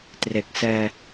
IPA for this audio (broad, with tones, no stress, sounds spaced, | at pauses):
t r e˨˩ k̚ s ɛː˧